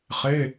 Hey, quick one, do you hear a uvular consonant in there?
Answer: yes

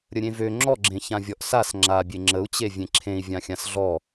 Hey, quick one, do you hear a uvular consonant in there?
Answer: no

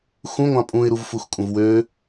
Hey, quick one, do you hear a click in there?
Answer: no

